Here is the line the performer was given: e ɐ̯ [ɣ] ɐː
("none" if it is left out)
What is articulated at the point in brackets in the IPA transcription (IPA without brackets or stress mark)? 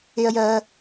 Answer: j